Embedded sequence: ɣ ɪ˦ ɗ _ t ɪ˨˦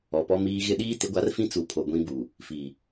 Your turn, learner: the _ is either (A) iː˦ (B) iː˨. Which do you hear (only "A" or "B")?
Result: A